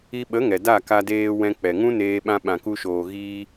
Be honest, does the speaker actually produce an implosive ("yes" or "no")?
yes